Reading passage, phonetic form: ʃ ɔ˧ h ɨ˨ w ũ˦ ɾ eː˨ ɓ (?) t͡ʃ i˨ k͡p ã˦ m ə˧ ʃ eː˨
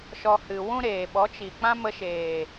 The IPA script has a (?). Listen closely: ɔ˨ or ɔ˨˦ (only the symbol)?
ɔ˨˦